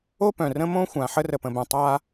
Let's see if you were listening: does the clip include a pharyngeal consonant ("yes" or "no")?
yes